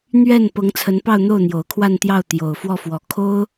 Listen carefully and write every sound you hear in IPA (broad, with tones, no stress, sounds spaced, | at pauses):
n̪ ɥ ɛ˥˩ n p ɤ˧˥ ŋ t͡sʰ ə˧˥ n p ɑ˥˧ ʊ̯ n̪ o˥˩ ʊ̯ n̪ j o˨˩ ʊ̯ kʰ w a˥˧ n t̪ j ɑ˥˩ ʊ̯ t̪ j o˨˩ ʊ̯ f w ɔ˥˩ f w ɔ˨˩ kʰ o˥ ʊ̯